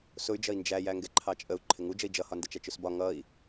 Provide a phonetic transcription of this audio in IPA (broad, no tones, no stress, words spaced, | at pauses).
sʊy̯d͡ʒʌi̯ nd͡ʒæjæ ŋɡɛǃʰɑt͡ʃʼəu̯ ǃʰɪŋud͡ʒəi̯ d͡ʒʌhɒndət͡ʃæt͡ʃ ʊsbɒ ŋʌi̯